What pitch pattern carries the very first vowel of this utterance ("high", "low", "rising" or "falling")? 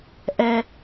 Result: high